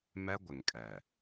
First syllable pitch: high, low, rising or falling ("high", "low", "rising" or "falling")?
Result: high